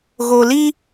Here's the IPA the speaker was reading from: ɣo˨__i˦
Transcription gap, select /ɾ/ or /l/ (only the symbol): l